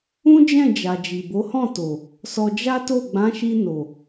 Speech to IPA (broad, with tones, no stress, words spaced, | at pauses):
ũ˦d͡ʒɛ̃˦˨d͡ʒa˨ d͡ʒi˨bo˨˦hɔ̃˦˨to˨ | sɔ˧d͡ʒa˦to˦˨ ɡ͡bã˨˦ʃi˧ no˨